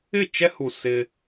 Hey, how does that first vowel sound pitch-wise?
falling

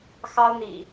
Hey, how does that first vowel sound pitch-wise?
high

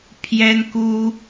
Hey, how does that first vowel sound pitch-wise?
high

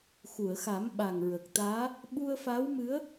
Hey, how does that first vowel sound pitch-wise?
low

